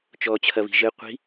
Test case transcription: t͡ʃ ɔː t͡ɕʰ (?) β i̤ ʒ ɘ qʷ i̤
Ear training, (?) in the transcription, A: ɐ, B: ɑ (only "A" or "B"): A